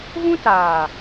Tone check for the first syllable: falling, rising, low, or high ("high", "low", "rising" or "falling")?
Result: high